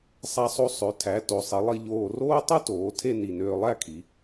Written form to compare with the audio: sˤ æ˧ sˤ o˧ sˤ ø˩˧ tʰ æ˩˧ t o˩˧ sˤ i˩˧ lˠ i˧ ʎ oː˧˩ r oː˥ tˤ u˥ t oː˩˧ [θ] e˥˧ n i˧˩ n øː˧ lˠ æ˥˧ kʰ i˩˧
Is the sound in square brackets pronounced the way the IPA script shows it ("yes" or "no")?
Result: no